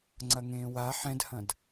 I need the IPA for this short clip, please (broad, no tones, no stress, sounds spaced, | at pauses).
ŋ͡ǀ ɐ ŋ ẽː w a ħ ɛ̃ d h ɐ̃ d